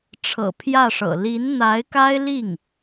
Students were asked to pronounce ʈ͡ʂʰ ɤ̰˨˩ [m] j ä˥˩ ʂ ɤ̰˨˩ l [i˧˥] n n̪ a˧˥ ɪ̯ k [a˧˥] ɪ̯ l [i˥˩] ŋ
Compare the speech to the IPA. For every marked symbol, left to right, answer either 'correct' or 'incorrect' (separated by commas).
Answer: incorrect, correct, incorrect, correct